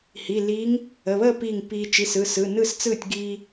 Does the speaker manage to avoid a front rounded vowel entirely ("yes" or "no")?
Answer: yes